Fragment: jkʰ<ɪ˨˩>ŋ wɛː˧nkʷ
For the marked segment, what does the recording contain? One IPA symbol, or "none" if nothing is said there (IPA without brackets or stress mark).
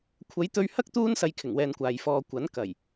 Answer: ɪ˨˩